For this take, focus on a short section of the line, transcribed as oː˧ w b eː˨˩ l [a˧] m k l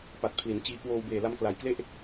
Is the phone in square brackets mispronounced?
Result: no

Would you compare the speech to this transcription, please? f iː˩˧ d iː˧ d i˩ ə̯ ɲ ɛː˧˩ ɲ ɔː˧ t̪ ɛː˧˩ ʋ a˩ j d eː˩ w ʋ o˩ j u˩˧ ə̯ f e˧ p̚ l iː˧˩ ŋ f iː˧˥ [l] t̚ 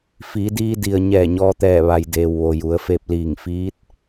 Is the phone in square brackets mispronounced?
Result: yes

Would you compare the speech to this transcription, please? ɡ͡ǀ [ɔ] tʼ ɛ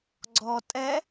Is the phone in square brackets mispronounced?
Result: no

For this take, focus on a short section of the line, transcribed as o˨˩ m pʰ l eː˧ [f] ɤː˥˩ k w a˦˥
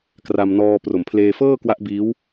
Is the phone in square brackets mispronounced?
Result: no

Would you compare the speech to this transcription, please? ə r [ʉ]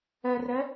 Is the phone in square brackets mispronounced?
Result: yes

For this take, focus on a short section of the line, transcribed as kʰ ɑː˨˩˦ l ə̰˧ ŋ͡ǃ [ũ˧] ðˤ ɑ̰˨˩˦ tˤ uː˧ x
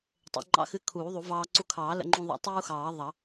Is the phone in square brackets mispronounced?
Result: no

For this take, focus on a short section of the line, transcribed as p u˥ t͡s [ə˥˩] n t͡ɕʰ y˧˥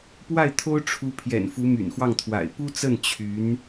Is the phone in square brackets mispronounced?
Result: no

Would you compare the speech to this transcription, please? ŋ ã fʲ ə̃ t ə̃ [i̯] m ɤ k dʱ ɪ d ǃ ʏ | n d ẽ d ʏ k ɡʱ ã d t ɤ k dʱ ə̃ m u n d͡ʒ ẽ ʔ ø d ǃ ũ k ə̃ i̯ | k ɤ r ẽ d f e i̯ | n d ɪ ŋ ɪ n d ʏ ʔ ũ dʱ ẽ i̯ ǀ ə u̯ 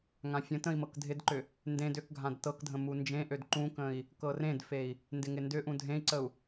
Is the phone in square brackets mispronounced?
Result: no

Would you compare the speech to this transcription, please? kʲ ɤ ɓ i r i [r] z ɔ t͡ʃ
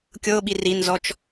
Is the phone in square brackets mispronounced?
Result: yes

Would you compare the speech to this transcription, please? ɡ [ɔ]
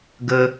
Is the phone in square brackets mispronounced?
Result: yes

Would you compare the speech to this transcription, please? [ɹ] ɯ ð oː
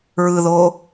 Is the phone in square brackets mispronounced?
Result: no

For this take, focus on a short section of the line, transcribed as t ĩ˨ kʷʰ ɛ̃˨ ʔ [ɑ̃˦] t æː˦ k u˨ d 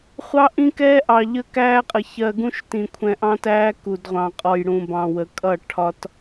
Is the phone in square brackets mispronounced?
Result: no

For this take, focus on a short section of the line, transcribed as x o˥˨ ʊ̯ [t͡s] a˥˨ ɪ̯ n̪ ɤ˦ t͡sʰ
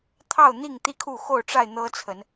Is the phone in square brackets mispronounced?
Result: yes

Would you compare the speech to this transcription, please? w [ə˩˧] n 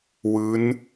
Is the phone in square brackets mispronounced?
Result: yes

